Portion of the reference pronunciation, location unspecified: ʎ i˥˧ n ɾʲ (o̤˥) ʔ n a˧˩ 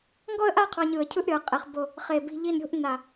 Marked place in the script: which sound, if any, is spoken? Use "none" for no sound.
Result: o̤˥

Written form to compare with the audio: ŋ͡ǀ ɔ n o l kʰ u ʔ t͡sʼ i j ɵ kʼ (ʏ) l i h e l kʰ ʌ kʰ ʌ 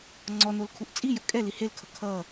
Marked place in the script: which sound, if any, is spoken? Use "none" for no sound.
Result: ɛ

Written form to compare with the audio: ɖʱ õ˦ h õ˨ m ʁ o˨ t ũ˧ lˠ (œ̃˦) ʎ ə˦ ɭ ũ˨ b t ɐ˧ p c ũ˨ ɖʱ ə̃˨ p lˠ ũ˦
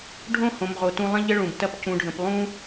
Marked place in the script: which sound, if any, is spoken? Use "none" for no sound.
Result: ə̃˦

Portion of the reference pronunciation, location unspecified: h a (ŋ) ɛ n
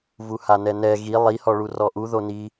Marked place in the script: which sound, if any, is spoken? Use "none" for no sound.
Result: n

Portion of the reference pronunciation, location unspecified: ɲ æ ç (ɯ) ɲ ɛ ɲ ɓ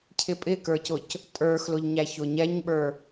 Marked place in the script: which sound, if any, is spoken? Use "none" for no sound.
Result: ʊ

